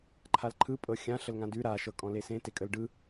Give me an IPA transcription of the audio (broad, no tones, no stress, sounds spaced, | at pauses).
ǃʰ a l ǃʰ ɯ pʼ ɤ xʲ ã ɬ ə l ŋ ã d ʉ ɾ a ʃ ɤ kʼ ɔ̃ l e s ẽ t e kʼ ə l ɖ ɯ